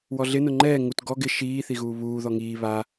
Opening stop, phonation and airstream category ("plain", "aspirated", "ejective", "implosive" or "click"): click